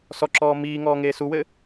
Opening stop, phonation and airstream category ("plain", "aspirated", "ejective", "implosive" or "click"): click